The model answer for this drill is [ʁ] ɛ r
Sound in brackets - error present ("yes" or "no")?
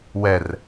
yes